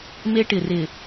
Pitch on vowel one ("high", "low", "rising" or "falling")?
high